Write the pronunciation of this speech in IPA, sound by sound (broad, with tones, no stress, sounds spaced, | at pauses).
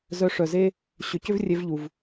z œ˧ ʂ œ˨ z e˦ | ɕ ʏ˨ c ʏ˦ v rʲ e˧ v ʎ u˨ v